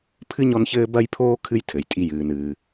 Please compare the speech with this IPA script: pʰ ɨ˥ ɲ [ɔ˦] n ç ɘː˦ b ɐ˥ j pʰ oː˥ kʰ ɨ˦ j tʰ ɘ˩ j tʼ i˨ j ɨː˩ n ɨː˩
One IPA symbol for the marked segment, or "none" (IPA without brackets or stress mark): ɔ˦